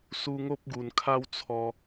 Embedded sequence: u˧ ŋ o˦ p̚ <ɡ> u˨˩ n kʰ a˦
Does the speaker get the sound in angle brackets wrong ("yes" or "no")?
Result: no